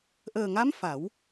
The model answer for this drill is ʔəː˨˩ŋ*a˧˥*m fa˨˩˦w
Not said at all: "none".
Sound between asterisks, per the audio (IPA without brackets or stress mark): a˧˥